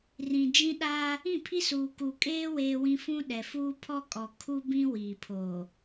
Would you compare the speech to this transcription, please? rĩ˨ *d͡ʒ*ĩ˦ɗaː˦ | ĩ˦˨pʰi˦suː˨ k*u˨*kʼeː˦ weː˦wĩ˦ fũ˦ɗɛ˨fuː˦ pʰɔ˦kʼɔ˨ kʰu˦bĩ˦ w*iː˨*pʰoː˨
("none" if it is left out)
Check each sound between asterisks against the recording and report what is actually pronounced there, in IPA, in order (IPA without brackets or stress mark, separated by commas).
d͡ʒ, u˨, iː˨